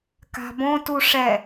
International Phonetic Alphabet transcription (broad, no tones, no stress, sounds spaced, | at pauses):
k a̤ b õ t u ʂ ɛ